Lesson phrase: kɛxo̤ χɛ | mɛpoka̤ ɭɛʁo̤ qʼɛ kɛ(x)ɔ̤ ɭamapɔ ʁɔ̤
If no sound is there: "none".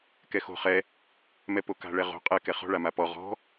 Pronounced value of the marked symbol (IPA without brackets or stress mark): χ